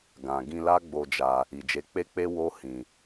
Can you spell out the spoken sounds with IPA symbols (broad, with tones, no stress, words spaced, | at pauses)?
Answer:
ɡã˨ ɡĩ˧la˦ɡ͡bo˧ d͡ʒa˧ | i˨d͡ʒe˨˦k͡pe˦k͡pe˦ wo˦hĩ˧